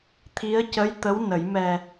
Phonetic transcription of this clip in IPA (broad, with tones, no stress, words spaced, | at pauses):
t̪ʰi˧˥ə̯ cə˧˥j t̪ə˧˥w nə˨˩˦jmɛ˧